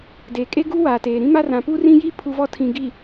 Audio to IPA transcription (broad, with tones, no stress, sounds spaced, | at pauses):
d eː˨ kʼ e˦ ɡ u˦ w aː˨ t eː˨ ɾ ĩ˦ m a˦ r ã˨ p u˦ r ĩ˦ j i˦ pʰ u˦ v ɔ˦ tʰ ĩ˨ ɡ i˨